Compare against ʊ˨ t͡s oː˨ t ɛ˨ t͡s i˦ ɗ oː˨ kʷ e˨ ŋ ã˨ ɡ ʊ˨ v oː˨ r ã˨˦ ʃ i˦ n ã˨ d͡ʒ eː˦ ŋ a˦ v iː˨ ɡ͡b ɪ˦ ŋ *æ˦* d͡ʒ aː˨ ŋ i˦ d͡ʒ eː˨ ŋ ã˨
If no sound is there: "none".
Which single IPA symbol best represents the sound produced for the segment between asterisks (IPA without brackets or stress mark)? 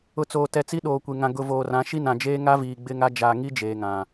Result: a˦